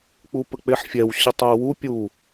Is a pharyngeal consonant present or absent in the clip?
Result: present